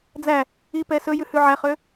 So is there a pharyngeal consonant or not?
yes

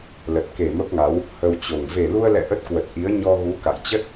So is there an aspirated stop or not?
no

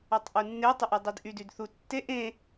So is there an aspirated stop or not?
no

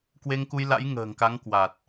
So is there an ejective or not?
no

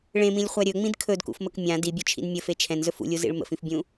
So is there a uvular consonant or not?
yes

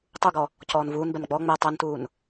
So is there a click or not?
no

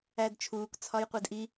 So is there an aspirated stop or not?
yes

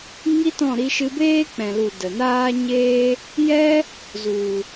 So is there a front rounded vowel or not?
no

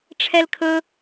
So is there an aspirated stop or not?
yes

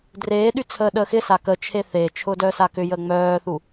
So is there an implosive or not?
yes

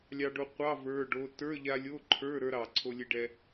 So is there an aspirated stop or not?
yes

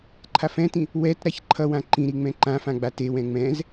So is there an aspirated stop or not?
yes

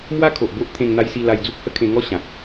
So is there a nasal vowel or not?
yes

